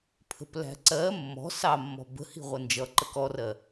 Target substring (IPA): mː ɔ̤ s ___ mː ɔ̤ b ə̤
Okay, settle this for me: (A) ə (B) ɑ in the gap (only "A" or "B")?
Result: B